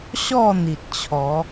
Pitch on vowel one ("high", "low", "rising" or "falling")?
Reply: falling